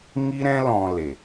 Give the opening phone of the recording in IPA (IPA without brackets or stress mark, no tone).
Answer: ŋ